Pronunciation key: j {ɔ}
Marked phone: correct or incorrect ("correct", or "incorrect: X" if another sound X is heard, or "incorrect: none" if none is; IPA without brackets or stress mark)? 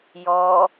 correct